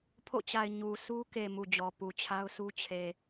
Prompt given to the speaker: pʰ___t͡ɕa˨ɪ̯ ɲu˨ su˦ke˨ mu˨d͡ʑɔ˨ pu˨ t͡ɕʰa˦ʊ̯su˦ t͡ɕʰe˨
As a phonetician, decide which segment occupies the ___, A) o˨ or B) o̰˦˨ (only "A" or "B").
B